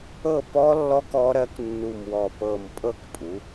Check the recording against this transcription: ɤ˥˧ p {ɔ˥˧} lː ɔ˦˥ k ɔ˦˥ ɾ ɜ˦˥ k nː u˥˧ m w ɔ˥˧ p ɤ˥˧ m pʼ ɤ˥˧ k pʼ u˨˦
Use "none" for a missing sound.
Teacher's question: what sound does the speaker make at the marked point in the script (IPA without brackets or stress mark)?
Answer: ɔ˦˥